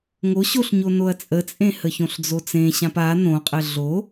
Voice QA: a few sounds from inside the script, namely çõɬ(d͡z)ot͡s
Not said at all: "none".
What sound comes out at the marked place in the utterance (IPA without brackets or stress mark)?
d͡z